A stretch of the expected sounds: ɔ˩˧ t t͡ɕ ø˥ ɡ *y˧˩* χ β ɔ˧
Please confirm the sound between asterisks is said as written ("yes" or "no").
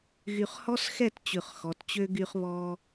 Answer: no